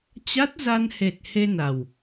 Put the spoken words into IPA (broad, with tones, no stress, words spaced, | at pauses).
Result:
t͡ɕa˦˥t̚za˧nhe˨˩t̚ he˧na˨˩w